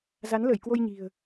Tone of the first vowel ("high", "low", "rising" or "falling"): rising